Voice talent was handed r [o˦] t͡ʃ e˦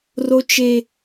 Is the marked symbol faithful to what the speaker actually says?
yes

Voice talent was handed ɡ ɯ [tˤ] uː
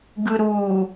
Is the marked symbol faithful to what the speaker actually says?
no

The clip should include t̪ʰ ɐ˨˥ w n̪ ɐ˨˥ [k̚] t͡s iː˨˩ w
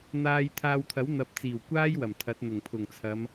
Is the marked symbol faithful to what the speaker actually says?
no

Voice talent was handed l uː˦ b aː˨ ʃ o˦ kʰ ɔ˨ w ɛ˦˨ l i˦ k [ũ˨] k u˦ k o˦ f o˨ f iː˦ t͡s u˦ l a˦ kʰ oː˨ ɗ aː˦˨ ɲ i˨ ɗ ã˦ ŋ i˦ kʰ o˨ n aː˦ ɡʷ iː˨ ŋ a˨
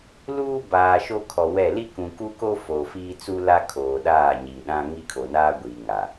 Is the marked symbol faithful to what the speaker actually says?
yes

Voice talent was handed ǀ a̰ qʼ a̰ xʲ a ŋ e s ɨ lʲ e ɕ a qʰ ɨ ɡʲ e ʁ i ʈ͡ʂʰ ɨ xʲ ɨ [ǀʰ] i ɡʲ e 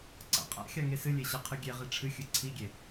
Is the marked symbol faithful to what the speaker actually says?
yes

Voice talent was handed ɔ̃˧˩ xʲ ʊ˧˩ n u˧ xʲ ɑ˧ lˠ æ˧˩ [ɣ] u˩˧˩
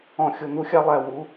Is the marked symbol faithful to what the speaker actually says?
no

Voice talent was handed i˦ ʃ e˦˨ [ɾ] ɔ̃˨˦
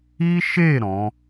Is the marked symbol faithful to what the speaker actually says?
yes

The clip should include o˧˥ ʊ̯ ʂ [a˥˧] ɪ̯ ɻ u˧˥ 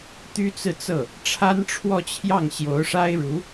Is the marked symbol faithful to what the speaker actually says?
no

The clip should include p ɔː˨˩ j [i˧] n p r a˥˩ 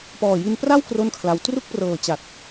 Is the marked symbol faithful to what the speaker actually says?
yes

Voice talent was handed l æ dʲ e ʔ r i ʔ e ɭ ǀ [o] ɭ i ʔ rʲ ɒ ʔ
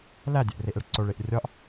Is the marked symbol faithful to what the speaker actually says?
yes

